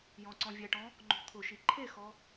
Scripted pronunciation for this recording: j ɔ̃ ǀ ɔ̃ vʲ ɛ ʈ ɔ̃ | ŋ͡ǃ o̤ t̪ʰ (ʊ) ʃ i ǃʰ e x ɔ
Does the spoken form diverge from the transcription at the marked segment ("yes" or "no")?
no